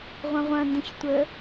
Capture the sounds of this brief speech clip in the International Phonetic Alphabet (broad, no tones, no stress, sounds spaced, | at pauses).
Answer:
ʁʷ ɐ̃ ʁʷ ɐ̃ n d ə̃ ç tʷ ə